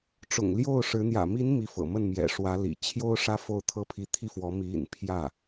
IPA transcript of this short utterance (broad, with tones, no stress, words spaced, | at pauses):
ʈ͡ʂʊ̰˨˩ŋljo˥˩ʊ̯ʂɻ̩˧˥ n̪jä̰˨˩mi˧˥n mi˧˥fɤ̰˨˩mə˥˩nmjɛ̰˨˩ ʂwä˧˥lḭ˨˩ t͡ɕʰjo˥ʊ̯ ʂä˥fo˥˩ʊ̯ t̪ʰɤ˥pʰi˥ t̪ʰi˥˩fwɔ˧˥ mi˧˥ḭ˨˩n pʰjä˥˩